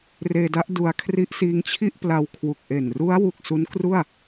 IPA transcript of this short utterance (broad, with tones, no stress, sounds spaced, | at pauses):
r eː˧ d a˦˥ ʔ d u˧ a̯ kʰ r i˦˥ ʔ s iː˦˥ ŋ t͡ɕʰ i˥˩ ʔ p l a˧ w kʰ w u˨˩ k̚ ʔ e˨˩ n r u˦˥ a̯ w u˨˩ k̚ s u˦˥ n k r u˥˩ a̯